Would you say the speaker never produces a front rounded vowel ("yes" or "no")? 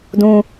yes